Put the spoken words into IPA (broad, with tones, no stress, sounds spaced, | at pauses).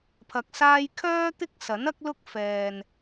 pʰ ɐ˨ k̚ s aː˧ j kʰ œː˥ t̪ ɪ˥ k̚ s ɐ˨˥ n ɐ˥ k̚ l ʊ˥ k̚ f ɛː˨ n